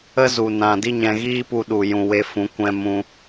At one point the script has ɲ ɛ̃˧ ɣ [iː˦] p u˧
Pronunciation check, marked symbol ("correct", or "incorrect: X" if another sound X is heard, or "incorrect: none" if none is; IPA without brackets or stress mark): correct